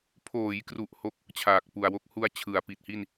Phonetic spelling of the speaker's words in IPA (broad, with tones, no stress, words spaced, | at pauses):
pʰoː˩˦jkru˨˩ʔ ho˦˥k̚ | t͡ɕʰaː˨˩k̚pu˨˩a̯wo˦˥k̚ hu˦˥a̯t͡ɕʰɯ˩˦a̯pi˨˩t̚hi˥˩n